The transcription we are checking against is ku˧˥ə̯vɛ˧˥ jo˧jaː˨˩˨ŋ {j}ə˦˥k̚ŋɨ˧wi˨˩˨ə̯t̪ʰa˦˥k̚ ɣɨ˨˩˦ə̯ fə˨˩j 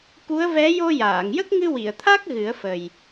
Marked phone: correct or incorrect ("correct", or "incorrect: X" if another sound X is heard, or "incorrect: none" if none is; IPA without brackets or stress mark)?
correct